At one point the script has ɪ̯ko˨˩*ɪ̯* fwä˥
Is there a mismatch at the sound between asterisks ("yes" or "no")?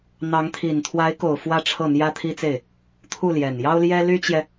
yes